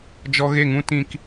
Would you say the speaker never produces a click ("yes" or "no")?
yes